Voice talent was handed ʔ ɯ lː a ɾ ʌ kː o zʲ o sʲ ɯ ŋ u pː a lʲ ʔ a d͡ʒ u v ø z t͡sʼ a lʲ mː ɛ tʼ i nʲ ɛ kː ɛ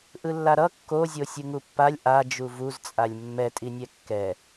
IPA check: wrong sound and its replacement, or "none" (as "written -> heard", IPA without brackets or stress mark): ø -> u